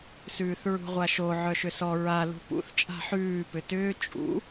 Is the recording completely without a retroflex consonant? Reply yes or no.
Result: yes